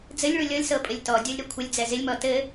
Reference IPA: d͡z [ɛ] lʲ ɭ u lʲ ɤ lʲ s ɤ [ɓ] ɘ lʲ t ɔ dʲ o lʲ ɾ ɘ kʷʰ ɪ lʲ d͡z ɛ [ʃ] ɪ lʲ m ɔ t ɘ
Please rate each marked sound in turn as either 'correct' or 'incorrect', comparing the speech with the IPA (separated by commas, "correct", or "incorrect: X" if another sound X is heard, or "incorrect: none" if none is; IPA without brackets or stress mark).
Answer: incorrect: ɘ, incorrect: pʼ, incorrect: z